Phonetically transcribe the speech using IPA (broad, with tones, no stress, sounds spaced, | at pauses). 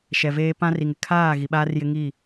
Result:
ʃ ɛ˨ v eː˦ p ã˦ r i˨ ŋ ɪ˨ kʰ aː˦˨ ɣ i˨ ɓ aː˦ r j ɪ˦ ŋ i˦˨